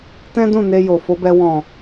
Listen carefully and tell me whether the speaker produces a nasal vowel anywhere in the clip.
yes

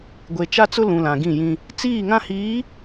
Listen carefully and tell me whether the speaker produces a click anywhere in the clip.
no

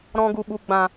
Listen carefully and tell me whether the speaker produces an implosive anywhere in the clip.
yes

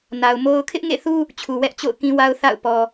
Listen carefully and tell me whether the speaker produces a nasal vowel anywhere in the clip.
yes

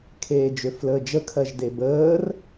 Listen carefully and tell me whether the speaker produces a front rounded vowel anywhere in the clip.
yes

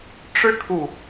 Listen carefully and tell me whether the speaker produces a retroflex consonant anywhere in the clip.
yes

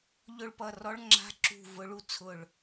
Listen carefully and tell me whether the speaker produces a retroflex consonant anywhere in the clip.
yes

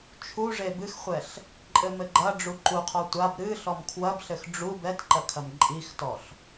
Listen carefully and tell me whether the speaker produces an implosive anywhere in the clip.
no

